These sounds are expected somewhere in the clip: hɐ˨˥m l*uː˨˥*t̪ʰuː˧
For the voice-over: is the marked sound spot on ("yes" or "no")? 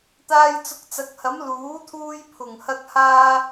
yes